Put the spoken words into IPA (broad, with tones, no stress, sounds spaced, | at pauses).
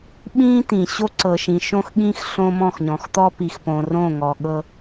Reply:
ɓ ĩː˦ t̪ ĩ˨ ɕ o˦ ǀ ɤ˨ ʃ ĩ˨ ʃ õ˦ x ɠ ĩ˦ x ɬ õ˦ m ɔ̃˦˨ x ɲ ɔ̃˨ x t̪ ɔ˦ p i˨ x p õ˨ r õ˦˨ ŋ ɔ˨ ɠ ɤ˦